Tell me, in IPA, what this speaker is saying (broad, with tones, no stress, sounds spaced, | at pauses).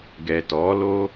ɡ ɛ˨ t ɔ˨˦ l o˧